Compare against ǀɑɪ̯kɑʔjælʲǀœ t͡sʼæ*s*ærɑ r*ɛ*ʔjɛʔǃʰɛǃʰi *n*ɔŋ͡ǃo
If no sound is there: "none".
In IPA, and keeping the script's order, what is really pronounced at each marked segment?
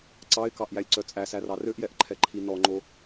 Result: s, ø, n

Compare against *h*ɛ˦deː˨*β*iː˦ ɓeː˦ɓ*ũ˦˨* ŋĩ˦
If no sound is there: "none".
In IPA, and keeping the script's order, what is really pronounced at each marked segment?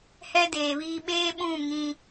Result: h, β, ũ˦˨

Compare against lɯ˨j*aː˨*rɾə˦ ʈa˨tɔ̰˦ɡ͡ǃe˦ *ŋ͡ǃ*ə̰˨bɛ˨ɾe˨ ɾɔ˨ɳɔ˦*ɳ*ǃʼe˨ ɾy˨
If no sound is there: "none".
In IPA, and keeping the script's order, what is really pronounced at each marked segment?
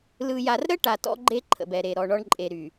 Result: a˨, ǃʰ, ɳ

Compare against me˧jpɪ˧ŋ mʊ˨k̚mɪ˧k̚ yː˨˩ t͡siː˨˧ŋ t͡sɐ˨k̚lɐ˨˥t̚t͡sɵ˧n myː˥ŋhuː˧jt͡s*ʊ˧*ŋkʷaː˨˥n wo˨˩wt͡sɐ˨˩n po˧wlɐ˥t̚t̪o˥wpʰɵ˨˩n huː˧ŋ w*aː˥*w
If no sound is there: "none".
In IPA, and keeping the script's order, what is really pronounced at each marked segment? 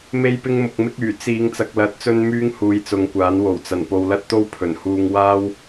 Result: ʊ˨˧, aː˥

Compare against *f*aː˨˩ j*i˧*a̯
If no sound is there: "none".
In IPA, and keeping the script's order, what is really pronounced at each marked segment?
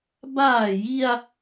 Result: b, i˧

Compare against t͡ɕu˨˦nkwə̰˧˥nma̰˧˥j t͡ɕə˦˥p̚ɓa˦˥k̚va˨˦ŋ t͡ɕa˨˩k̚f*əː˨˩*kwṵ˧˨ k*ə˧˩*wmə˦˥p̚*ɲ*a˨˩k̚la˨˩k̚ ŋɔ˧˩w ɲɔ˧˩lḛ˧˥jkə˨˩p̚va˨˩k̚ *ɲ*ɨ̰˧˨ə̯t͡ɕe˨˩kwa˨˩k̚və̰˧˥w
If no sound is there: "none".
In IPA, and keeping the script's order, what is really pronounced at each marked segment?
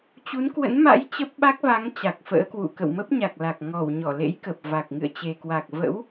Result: ə̰ː˧˥, ə̰˧˨, ɲ, ŋ

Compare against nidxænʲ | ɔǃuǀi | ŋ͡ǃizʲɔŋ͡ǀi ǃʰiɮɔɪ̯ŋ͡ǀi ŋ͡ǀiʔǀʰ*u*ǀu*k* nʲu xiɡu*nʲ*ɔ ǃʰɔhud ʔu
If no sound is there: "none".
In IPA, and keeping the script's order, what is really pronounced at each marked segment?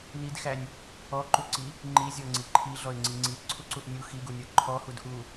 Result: u, ʔ, nʲ

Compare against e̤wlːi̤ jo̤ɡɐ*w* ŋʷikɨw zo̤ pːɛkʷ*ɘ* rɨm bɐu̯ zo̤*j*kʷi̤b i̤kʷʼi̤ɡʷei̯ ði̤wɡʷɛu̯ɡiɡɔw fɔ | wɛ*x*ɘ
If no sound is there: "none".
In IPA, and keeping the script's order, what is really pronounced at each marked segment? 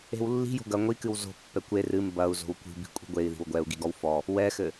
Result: none, e, w, x

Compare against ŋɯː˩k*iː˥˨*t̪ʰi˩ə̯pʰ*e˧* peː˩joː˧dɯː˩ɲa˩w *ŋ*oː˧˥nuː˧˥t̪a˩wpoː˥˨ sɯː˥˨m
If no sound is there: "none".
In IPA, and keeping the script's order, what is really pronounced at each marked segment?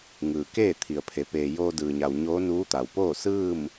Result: eː˥˨, e˩˧, ɲ

